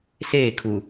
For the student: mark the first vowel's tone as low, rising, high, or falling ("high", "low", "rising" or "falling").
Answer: falling